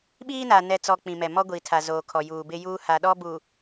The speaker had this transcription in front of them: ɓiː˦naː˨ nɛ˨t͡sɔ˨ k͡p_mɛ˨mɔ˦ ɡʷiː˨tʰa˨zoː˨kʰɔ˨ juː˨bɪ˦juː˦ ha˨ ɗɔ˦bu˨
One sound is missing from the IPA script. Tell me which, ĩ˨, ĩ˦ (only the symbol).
ĩ˨